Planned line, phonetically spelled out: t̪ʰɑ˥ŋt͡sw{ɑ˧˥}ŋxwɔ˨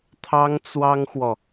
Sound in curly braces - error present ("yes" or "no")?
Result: yes